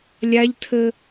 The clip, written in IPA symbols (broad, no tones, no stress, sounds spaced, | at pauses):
lʲ a ʎ tʰ ə